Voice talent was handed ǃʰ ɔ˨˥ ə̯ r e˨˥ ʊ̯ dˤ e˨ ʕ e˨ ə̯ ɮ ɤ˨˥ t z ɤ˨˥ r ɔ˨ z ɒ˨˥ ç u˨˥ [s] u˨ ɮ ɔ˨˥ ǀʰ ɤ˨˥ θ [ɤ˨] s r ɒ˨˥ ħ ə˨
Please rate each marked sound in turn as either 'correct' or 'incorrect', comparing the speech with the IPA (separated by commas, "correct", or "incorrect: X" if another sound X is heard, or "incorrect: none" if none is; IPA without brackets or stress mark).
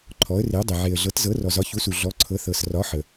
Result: correct, correct